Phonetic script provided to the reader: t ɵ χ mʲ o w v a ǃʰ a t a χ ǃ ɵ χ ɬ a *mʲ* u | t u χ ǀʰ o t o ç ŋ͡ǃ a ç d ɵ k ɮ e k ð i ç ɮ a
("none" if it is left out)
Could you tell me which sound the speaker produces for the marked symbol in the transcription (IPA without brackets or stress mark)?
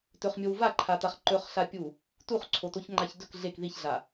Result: pʲ